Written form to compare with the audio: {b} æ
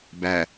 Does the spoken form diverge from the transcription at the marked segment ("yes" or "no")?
no